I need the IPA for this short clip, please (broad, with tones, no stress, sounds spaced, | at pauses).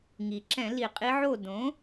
ŋ i˩ ǁ ɛ̃˧˩˧ l i˧˩˧ qʼ i˧˥ ʕ o˥˨ d õ˩˥